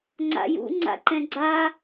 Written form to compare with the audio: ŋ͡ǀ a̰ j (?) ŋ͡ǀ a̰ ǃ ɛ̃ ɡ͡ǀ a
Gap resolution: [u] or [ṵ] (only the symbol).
ṵ